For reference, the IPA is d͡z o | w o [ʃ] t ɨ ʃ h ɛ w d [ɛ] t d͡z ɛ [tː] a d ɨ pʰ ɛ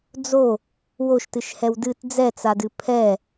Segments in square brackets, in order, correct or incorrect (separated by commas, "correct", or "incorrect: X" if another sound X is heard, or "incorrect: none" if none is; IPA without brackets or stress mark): correct, incorrect: ɨ, incorrect: t͡s